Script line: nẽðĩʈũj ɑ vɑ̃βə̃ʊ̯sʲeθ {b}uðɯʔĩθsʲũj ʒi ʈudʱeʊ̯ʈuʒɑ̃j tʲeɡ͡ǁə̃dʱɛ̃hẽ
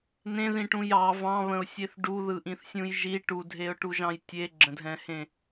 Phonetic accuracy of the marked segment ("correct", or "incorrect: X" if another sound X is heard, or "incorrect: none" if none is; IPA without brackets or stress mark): incorrect: ɖ